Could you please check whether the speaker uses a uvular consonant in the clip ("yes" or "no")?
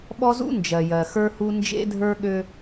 no